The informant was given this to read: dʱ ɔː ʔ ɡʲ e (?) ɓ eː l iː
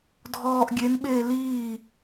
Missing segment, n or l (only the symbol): n